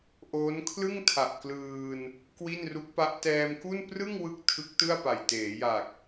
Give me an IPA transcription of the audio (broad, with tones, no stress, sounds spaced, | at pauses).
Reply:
ʔ oː˦˥ n kʰ l ɯ˥˩ ŋ tʰ a˨˩ ʔ k l ɯː˧ n | k w i˥˩ n r u˦˥ k̚ p a˦˥ ʔ t ɛː˧ m k u˥˩ n p r ɯ˥˩ ŋ w ɯ˦˥ k̚ tʰ ɯ˦˥ k̚ t ɯ˥˩ a̯ p a˨˩ j t eː˩˦ j a˨˩ k̚